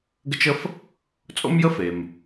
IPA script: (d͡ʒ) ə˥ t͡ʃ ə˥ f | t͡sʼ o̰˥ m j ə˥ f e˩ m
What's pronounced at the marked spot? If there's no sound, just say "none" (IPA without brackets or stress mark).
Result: ɡ